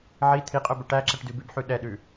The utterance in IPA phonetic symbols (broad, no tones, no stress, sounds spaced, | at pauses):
ʕ i t̪ʰ i qʼ œ b œ ʈ æ ǁ ɛ ʈ d ʉ b ʉ b ħ ʉ ɗ ɛ ɗ ʉ